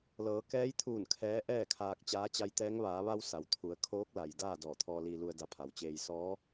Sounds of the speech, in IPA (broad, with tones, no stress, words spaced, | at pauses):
lɤː˩˧kɛː˧˥jt̪ʰuː˧˩n kʰɛː˧˥ʔɛː˥˨kʰaː˧k̚ t͡ɕaː˧˥t͡ɕa˧˥jt̪ɛː˧˥ŋ ʋaː˩˧ʋa˧w sa˩wt̪ʰu˩˧ə̯ kʰoː˧˥k̚la˩j daː˥˨ dɔː˧˩t̪ʰɔː˧liː˧ lu˧ə̯da˧pʰa˩˧wt͡ɕeː˧j sɔː˧˥